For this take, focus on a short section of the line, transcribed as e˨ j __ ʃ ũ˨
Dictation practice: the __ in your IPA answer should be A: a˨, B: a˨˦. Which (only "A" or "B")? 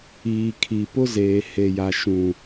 A